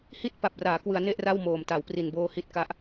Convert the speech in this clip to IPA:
hi˥˩t̚pa˨˩p̚raː˩˦kwɯ˩˦a̯ ne˥˩ʔra˥˩wmoː˨˩m ta˩˦wpri˨˩nboː˧ hi˥˩t̚ka˦˥ʔ

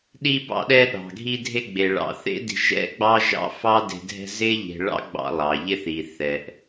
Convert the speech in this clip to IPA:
ɗi˧bɑ̰˧ɗɛ˧ ɗɑ̤˩ɡʱi˧dʱe˧ɡ͡be˩ ɭɑ̰˩θḛ˥ di̤˧ʒɛ̰˥ɡ͡bɑ˥ ʒɑ̰˥ fɑ˥de̤˧ dʱɛ̤˧ zɪ˥ʎe̤˧ ɭɑ̰˥ɡ͡bɑ̰˧ lˠɑ˩ʎɪ˧θi˩θɛ˩ʔ

